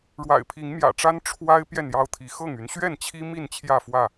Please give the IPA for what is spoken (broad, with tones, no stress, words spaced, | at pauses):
ɻwa̰˨˩ɪ̯pʰi˨˦ŋmjä̰˨˩ʈ͡ʂa˦n ʈ͡ʂʰwa˦ɪ̯ pjɛ˥˨njɑ˦ʊ̯t̪ʰi˨˦ xɤ˥˨ŋy˨˦n ɕɥɛ˥˨nt͡ɕʰi˦mi˥˨n t͡ɕʰjä˥˨fwä˥˨